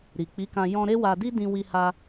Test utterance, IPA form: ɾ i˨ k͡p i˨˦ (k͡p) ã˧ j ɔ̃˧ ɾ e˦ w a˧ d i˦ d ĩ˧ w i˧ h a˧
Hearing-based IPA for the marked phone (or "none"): k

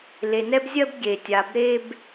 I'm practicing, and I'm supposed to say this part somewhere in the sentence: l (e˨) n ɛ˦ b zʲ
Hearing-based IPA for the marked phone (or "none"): e˨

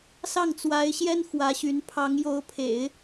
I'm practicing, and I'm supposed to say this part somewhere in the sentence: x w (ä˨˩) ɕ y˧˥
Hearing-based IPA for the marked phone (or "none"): ä˧˥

